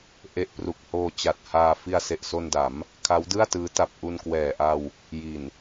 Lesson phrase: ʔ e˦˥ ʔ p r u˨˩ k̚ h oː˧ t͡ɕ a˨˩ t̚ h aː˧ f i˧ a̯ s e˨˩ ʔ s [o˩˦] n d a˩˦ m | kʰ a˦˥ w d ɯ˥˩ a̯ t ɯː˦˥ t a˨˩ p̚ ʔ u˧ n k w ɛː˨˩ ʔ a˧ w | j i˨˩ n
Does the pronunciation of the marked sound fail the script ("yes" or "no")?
yes